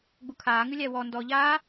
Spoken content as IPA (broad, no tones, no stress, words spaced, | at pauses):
ɡ͡bukʰaːŋʉlʲæ wɔ ndɔ ʎaː